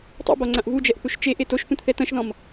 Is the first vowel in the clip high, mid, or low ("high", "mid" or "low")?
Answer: mid